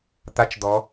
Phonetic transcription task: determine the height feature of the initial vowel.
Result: low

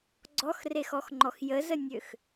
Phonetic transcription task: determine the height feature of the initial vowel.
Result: mid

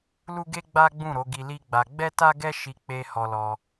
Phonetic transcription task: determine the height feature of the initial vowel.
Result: high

